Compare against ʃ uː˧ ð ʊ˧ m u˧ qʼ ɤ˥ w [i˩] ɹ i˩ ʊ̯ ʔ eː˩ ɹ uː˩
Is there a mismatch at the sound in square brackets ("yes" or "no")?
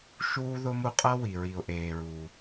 no